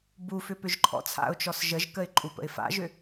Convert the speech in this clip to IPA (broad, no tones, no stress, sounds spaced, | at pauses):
b u f ʏ p ʏ ʒ ǃʰ ɔ̰ t͡sʰ a̰ ʊ̯ t͡ʃ ɔ s ʒ ə ʒ k ə ɪ̯ ǃʼ u p ə̰ ɪ̯ f a̰ ʒ ʏ